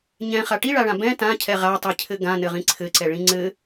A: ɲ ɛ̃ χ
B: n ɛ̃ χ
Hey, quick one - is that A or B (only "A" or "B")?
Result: A